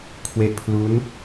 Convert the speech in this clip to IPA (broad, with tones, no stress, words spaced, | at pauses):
kʰwe˦˥ʔpʰlu˦˥n